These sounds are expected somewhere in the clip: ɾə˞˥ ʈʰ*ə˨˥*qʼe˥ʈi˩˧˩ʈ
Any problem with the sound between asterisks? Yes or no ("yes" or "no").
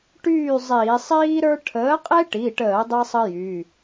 yes